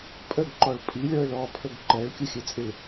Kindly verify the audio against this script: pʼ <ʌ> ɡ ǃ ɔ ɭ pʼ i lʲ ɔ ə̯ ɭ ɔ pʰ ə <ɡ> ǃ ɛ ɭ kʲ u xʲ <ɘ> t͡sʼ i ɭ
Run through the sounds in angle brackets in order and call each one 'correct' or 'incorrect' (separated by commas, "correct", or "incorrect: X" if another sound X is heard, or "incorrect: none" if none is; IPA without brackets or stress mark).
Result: incorrect: ə, correct, correct